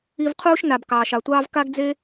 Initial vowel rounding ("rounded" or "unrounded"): unrounded